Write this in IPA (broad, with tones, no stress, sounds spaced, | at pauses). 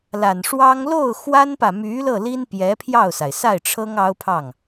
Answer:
l a˨˩ n ʂ w ɑ˥ ŋ l o˥˩ ʊ̯ x w a˥ n p ä˨ m y˧˥ l ɤ˥˩ l i˥ n p j ɛ˧˥ pʰ j ɑ˥˩ ʊ̯ s a˩ ɪ̯ s a˥˩ ɪ̯ ʈ͡ʂʰ ɤ˥ ŋ ɑ˥ ʊ̯ pʰ ɑ˥˩ ŋ